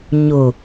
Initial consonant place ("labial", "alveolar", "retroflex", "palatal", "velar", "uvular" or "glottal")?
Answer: palatal